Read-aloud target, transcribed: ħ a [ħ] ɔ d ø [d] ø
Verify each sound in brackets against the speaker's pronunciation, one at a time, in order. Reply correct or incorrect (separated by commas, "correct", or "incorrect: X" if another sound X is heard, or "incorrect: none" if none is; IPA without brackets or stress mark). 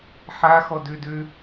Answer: incorrect: x, correct